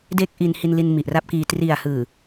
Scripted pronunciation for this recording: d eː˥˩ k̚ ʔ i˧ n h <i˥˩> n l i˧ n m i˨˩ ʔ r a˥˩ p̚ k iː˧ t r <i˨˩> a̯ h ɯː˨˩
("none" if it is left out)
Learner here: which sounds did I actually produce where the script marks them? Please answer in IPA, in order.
i˧, i˨˩

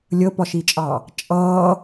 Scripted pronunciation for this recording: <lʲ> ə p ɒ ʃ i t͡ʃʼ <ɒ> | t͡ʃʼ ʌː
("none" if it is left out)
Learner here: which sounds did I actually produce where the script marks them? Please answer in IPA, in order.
lʲ, ɑ

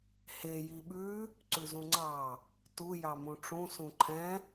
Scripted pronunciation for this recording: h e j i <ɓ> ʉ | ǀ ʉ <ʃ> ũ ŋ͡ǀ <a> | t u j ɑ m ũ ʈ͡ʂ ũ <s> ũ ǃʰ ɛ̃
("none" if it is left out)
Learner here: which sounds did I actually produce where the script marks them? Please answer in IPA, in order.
ɓ, z, ɑ, s

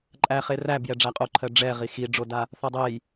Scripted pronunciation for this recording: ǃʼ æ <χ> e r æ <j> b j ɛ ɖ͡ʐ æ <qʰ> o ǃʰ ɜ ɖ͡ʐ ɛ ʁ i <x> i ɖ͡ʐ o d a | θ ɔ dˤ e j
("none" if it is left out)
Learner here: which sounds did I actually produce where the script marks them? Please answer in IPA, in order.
χ, none, qʼ, x

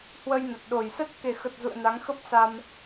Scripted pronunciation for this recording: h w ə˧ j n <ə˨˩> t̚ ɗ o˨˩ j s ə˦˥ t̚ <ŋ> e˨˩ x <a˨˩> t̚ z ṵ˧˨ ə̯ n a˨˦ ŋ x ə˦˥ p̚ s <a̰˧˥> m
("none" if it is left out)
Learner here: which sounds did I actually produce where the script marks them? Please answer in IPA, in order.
ə˨˩, k, ə˨˩, a˧

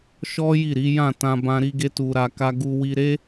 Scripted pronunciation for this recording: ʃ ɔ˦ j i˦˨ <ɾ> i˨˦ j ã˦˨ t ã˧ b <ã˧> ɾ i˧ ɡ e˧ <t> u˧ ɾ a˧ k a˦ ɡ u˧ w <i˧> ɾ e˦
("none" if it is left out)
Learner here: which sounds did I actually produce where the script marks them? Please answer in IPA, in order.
ɾ, ã˧, t, i˧

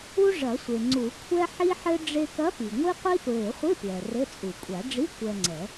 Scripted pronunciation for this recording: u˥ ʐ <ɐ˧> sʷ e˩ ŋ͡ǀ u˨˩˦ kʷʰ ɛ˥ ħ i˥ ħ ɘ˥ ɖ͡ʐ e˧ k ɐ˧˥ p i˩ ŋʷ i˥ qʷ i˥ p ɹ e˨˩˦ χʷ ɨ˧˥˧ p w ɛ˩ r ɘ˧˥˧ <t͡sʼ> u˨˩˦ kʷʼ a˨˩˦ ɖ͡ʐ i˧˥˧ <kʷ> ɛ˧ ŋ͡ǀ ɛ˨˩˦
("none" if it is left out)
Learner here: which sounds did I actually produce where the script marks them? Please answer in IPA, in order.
ɐ˨˩˦, t͡sʼ, kʷ

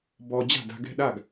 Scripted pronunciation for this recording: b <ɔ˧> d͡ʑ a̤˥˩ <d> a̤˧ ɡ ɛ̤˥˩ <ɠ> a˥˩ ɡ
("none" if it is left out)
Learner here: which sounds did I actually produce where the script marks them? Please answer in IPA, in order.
ɔ˧, d, ɗ

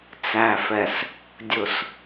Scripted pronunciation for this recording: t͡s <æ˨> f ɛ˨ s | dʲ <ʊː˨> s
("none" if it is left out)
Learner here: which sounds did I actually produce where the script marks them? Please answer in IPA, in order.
æ˨, ʊ˨

